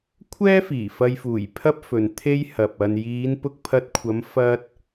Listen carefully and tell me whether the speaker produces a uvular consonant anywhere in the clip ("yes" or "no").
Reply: no